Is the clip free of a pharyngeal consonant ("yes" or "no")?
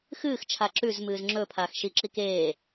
yes